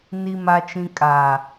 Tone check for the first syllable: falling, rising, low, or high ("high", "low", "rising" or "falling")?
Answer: low